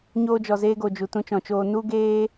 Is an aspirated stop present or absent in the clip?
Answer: absent